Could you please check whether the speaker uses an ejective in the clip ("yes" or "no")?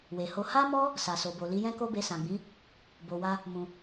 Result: no